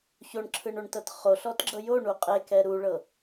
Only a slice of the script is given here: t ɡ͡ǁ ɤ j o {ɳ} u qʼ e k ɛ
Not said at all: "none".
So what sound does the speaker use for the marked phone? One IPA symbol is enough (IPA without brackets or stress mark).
ɳ